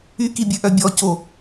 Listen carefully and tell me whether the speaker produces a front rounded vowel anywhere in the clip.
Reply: yes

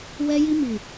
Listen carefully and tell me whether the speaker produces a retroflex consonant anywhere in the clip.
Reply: no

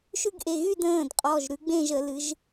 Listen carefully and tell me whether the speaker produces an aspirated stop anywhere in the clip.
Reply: no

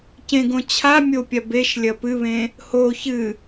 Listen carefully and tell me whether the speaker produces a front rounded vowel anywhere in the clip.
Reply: no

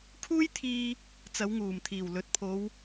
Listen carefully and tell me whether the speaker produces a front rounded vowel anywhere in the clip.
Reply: no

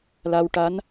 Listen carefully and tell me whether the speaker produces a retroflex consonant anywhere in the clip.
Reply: yes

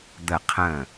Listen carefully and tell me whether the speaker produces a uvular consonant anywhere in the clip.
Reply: yes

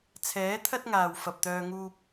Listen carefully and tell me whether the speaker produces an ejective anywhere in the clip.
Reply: no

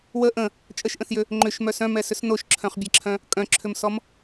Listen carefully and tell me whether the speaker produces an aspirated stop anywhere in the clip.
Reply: yes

